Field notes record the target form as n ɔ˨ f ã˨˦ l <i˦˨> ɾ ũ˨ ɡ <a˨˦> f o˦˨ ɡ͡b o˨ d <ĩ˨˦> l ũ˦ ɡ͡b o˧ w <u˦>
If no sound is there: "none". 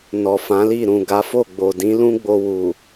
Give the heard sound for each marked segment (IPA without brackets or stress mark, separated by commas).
i˦˨, a˨˦, ĩ˨˦, u˨